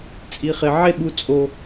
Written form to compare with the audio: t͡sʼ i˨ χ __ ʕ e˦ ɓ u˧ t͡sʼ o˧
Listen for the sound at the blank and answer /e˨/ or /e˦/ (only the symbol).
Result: e˨